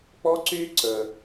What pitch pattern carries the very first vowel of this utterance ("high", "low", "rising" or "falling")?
high